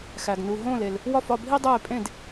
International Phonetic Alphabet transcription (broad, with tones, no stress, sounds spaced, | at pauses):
x æ˧ ɡ n u˧ ɦ õː˥˧ l e˧ l | w ɒ˥˧ f ɒ˥˧ bʱ i˥ dˤ eː˥˧ pʼ ẽ˥˧ d